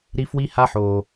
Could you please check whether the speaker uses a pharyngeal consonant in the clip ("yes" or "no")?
yes